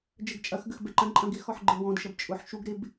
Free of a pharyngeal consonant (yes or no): no